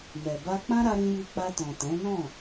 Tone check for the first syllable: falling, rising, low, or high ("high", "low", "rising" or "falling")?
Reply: low